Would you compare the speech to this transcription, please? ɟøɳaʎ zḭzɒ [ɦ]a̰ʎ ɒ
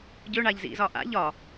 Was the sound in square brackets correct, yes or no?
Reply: no